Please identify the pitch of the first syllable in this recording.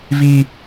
high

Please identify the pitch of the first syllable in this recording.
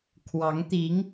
rising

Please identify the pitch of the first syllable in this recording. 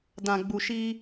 low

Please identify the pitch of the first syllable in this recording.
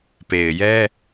low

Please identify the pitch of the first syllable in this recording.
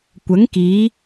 rising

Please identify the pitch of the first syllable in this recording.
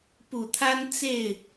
low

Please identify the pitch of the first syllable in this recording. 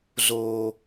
low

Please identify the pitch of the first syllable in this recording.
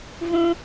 high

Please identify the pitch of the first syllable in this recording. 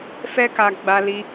high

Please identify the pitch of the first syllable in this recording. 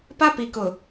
high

